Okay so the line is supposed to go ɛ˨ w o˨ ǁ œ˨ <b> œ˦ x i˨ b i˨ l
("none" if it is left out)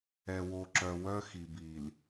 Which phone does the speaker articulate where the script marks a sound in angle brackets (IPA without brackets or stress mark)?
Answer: w